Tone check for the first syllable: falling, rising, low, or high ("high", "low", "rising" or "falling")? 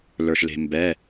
low